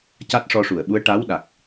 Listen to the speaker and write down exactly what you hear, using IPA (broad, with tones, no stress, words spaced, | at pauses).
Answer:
ca˦˥t̚ʂɔ˧ʂu˨˩˨ə̯ɓu˧˥ə̯ ʈa˧˥wɗa˨˩k̚